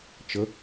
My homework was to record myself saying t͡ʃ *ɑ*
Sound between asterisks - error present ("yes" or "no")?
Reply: yes